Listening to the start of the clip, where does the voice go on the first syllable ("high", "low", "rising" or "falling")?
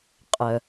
low